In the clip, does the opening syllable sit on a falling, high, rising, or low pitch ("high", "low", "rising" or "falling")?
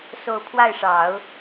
falling